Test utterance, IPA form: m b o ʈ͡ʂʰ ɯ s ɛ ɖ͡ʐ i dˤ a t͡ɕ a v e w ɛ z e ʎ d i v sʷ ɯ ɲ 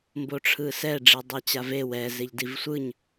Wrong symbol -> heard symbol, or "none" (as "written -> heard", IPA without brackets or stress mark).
none